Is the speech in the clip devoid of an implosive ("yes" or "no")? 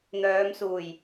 yes